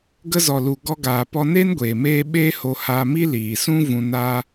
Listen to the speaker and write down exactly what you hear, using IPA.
ɡ ə˧ z ɔ˨ l u˨ ɡ ɔ˧ ɡ aː˨ p ɔ˧ n e˦ n ɡʷ eː˨ m eː˦ ɓ eː˦ h o˧ h aː˧ m i˦ l iː˨ s ũ˦ v ũ˧ n aː˦

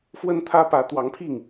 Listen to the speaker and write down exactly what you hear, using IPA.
f w ə˥ n t̪ʰ ä˥ p ä˧˥ t̪ w ɑ˧˥ ŋ pʰ i˥˩ ŋ

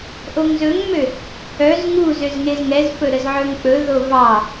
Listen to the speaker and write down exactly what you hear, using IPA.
ʔ o ŋ z ɵ ŋ m ø | œ z ŋ u z ø z ŋ e z ŋ ɛ z f ɵ ɾ ə z ʕ ɵ ŋ k͡p ɵ ð o v ɑ

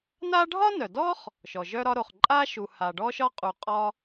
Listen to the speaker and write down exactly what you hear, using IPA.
n a˥ ɖʱ ɒ˥ n œ˩ d ɔ˥ χ | ʃ ɔ˩ ʒ œ˥ ɾ ɒ˥ ɾ o˩ χ ǃʼ a˥ ʃ u˩ h a˩ ɖ ɔ˥ ʃ ɒ˥ qʼ u˩ qʼ ɒ˥

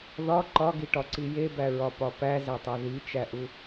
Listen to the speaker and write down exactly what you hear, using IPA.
ð ɒ ǃ ɒ ɡ i ʈ ɒ ǀ i j e b æ ɹ ɒ p ɒ p æ z æ tˤ æ ð i t͡ʃ æ ʔ u

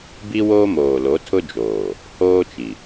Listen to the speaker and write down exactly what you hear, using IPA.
b i˦ w oː˦ m oː˨ l o˨˦ tʰ ʊ˦ d͡ʒ oː˨ | h oː˦ t͡ʃ i˨

